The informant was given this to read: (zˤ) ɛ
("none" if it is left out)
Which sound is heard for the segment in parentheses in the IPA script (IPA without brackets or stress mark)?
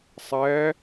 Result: sˤ